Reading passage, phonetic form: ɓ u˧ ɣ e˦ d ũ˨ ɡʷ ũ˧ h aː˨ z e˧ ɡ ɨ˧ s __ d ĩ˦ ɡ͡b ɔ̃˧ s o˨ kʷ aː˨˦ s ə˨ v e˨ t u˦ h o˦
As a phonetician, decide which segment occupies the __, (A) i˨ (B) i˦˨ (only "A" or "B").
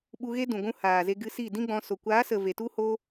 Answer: B